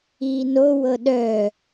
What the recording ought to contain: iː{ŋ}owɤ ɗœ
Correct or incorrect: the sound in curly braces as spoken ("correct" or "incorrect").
incorrect